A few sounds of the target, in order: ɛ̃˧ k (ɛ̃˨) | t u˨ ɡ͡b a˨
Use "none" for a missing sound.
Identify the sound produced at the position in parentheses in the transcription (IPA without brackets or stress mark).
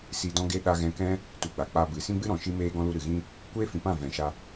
ɛ̃˦